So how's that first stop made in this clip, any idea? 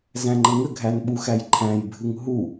click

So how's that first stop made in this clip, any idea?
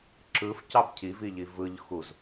click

